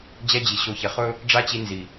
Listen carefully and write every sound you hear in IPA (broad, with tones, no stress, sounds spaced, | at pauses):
d͡ʑ ɛ˧ d͡ʑ i˨ ɕ o˨ ç ɛ˨ χ ɵ˦ | ɖ͡ʐ a˦ t͡ɕ i˧ n z i˨